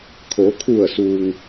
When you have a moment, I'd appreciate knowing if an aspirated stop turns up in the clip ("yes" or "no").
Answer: yes